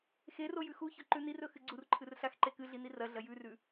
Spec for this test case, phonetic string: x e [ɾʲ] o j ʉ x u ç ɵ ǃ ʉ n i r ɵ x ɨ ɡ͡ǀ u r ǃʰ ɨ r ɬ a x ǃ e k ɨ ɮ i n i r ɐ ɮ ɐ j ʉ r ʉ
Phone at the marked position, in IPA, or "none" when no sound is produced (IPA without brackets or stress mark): r